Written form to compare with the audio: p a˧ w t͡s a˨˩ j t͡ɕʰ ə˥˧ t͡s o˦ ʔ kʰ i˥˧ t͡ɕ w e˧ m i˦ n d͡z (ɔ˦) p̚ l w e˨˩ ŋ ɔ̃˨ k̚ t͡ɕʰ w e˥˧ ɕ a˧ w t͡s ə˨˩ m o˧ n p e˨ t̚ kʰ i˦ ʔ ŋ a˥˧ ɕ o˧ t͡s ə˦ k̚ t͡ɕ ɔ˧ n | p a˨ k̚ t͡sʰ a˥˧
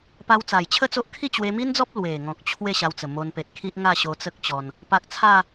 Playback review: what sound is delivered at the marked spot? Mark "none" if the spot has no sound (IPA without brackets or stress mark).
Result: ɔ˦